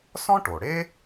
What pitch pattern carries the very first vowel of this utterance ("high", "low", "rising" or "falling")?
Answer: high